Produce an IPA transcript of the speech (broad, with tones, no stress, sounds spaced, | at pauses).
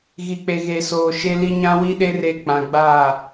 ɣ i˨ k͡p e˨ ɣ e˨ s oː˨ ʃ e˦ l i˦ ɲ ã˦ w i˦ ɗ e˦ r e˦ k͡p ã˨ ɡ͡b aː˦˨